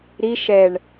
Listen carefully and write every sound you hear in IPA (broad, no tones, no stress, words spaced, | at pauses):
ɾi ʃɛɳ